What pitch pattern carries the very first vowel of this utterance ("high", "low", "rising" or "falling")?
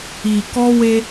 low